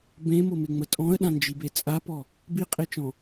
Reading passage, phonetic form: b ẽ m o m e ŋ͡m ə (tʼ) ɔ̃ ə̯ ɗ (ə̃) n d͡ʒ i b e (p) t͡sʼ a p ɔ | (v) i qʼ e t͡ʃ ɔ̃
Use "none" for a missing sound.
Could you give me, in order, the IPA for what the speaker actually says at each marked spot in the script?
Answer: tʼ, ã, none, b

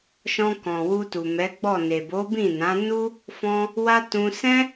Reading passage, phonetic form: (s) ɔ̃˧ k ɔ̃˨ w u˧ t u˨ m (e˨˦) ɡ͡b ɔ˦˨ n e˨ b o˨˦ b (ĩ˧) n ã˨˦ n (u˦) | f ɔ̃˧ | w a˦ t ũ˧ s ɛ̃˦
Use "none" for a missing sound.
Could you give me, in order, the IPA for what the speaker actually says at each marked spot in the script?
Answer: ʃ, ɛ˨˦, ĩ˦˨, u˦

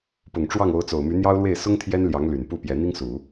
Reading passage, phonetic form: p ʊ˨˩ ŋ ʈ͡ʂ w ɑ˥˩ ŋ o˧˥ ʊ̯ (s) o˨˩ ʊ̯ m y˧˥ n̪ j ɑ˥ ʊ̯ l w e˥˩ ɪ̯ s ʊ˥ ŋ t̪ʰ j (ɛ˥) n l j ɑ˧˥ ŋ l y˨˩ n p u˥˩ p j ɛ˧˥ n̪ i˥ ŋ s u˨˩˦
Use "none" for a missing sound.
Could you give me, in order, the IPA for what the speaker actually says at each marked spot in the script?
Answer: t͡s, ɛ˥

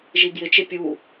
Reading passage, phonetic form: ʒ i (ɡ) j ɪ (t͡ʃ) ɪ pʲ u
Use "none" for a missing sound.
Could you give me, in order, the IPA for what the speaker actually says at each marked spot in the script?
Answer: ɡ, t͡ʃ

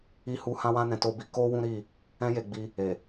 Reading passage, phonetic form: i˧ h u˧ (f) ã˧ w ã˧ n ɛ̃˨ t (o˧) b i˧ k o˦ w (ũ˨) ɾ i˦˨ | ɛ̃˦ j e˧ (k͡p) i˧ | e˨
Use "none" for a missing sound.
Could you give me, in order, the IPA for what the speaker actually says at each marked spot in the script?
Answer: h, o˧, ũ˦, ɡ͡b

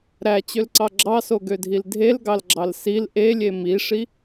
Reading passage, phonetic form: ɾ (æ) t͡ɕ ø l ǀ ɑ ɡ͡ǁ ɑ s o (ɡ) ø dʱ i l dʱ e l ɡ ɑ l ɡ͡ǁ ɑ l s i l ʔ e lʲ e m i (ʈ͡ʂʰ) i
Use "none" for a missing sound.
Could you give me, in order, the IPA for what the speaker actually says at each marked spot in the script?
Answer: æ, ɡ, ʂ

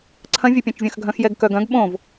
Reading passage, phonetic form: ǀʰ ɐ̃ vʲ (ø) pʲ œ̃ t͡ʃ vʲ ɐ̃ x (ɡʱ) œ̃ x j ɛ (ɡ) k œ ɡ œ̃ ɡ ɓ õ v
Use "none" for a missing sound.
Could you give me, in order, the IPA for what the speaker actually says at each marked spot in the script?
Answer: œ, ɡʱ, ɡ

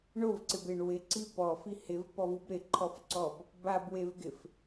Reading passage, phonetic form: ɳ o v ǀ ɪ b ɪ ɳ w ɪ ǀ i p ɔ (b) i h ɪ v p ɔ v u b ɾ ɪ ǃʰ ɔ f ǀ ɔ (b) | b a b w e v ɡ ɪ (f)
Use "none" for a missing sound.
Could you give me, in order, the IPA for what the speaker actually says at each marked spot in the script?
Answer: f, b, f

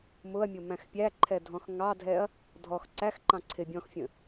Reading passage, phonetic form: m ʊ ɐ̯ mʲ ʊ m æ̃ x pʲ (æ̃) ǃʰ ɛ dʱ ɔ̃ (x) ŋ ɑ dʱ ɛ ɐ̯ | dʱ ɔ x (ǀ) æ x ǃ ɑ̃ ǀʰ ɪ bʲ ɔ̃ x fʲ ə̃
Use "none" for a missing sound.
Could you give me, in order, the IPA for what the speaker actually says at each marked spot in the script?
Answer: æ, x, ǀ

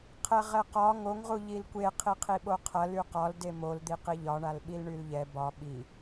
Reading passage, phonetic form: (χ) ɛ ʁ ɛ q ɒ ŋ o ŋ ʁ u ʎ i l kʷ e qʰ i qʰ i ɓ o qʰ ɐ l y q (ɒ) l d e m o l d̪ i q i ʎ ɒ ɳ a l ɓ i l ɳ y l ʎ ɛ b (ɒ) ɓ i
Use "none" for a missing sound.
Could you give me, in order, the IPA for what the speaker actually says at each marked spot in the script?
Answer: qʰ, ɒ, ɒ

